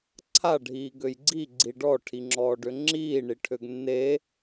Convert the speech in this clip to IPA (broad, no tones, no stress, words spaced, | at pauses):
ǀʰa ɖʱiːɡøjɡ͡ǀi ɡ͡ǀiɖɔ ʈʰiŋ͡ǁɔːɖøŋ͡ǁiː ɳiʈʰøɡnːe